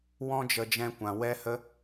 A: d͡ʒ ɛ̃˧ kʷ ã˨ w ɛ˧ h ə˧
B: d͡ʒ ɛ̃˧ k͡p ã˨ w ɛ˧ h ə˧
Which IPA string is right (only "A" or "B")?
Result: A